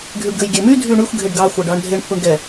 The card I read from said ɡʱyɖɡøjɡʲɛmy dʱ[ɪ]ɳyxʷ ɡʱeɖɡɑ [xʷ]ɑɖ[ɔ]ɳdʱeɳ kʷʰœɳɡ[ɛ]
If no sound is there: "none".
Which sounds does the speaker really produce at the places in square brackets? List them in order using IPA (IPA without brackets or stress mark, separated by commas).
y, xʷ, ɑ, ɛ